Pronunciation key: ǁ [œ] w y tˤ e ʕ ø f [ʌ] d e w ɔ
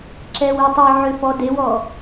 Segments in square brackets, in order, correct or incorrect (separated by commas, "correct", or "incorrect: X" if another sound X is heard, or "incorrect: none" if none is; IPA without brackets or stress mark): incorrect: ɛ, incorrect: ɔ